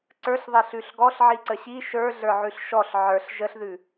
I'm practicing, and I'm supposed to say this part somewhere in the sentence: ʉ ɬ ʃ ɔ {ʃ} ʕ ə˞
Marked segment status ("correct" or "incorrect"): incorrect